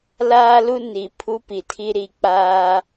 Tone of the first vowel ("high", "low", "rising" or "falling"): high